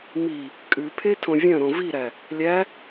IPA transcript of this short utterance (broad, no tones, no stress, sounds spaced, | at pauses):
m i | kʼ ʉ pʰ e tʰ õ vʲ œ̃ ɾ õ v i ɾ æ | lʲ æ